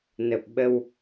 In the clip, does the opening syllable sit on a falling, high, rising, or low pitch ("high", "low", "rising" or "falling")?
low